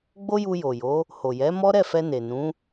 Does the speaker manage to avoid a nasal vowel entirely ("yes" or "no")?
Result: no